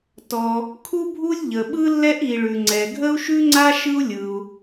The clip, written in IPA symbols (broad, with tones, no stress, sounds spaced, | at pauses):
t ɔ˩ | kʰ u˥ bʱ u˥ lʲ ʎ ə˩ ɓ ɯ˥ lː ɛ˥ ʔ i˩ ɭ ʉ˩ ŋ͡ǀ ɛ˩ ɡʱ ə˥ u̯ ʃ ʉ˥ ŋ͡ǀ a˥ ʃ ɯ˥ u̯ lʲ ɯ˩ u̯